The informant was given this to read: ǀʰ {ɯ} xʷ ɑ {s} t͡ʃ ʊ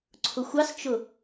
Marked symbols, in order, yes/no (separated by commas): no, yes